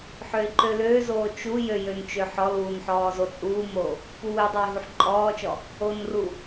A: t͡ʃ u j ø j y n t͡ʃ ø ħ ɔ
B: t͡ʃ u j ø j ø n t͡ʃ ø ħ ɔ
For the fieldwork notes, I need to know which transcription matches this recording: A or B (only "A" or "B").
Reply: B